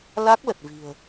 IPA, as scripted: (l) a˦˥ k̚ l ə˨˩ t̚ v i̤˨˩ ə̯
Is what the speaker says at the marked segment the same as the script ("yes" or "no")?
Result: yes